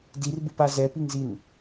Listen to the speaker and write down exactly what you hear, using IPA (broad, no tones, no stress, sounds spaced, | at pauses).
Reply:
d i r b ɯ p a z ɛ p i ŋ z i n